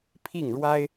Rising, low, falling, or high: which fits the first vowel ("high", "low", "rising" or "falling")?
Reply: falling